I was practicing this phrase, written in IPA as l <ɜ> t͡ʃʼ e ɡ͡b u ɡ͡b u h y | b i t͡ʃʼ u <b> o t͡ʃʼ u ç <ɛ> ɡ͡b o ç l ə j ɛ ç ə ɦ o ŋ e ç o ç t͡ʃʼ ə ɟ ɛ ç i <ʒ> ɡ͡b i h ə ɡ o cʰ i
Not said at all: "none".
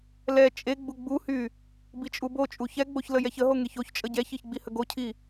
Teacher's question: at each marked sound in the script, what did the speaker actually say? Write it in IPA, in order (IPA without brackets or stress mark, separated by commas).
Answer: ɛ, b, ɛ, ç